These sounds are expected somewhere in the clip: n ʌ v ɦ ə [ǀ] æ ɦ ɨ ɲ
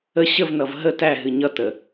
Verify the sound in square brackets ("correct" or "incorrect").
incorrect